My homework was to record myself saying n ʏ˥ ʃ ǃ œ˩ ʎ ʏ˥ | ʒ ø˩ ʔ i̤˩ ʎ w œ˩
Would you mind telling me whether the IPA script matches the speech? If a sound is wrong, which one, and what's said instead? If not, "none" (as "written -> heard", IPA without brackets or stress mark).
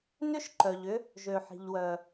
ʔ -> ħ